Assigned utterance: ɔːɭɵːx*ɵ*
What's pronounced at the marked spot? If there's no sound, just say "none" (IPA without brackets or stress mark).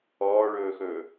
ɵː